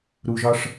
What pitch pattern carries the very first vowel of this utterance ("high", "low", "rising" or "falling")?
low